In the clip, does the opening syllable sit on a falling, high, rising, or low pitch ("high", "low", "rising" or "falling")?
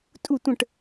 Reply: falling